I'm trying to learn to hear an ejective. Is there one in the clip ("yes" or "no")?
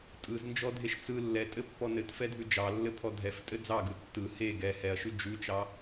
yes